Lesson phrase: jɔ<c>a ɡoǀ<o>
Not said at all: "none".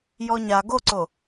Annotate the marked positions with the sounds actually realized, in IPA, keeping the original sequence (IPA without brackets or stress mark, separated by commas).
ɲ, o